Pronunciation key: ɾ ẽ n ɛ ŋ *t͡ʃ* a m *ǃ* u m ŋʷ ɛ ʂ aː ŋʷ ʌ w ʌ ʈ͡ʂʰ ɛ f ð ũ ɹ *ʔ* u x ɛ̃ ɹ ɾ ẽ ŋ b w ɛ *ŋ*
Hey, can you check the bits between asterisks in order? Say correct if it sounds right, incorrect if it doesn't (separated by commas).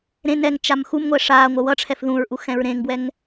correct, incorrect, correct, correct